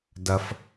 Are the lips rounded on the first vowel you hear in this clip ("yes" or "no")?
no